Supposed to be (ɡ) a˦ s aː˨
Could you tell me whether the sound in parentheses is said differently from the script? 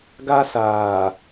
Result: no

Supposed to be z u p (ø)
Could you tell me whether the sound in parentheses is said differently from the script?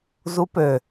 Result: no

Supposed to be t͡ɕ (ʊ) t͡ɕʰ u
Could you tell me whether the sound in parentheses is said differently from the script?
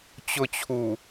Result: no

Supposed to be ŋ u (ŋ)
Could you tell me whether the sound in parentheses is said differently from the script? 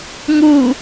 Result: yes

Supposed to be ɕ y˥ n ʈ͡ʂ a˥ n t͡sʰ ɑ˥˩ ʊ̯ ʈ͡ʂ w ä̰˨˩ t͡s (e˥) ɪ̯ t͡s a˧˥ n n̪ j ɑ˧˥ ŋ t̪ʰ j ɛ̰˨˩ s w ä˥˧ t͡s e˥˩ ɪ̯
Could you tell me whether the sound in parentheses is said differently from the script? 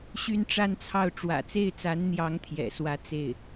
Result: yes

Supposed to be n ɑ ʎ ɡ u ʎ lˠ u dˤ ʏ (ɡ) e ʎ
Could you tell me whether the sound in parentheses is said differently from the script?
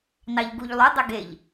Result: no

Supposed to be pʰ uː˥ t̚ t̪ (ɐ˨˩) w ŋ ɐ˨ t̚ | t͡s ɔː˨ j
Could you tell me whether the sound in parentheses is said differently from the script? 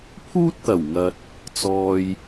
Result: no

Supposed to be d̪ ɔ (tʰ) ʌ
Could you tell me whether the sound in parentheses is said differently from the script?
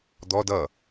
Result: yes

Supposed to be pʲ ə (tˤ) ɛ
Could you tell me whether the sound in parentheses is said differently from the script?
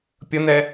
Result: yes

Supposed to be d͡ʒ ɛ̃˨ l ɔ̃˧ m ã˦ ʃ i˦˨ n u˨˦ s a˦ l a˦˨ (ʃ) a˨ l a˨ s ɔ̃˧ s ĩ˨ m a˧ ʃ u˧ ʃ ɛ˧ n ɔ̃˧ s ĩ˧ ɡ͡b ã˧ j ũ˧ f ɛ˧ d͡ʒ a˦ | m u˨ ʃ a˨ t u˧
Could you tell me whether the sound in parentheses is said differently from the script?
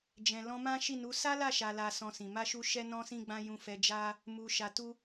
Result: no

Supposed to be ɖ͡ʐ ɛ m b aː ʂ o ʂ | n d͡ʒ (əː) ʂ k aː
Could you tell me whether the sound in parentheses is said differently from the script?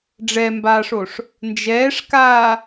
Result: yes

